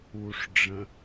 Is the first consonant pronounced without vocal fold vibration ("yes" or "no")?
yes